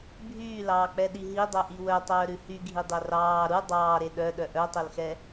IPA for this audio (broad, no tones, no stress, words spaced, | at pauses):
bʱyːlɑːk͡pɛɗi ɦidˤœʔi wœtˤœːɾʉ hyɡʱidˤœ rɑː ɾu dˤɑːɾe ɗœɗœ ʔœtˤœlxɛ